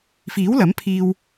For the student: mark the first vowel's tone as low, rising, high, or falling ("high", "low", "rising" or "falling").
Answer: rising